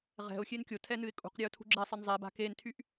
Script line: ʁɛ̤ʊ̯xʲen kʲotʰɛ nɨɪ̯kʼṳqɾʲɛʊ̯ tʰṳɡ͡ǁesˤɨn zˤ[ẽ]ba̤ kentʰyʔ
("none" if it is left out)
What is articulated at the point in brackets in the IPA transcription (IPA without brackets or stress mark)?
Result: e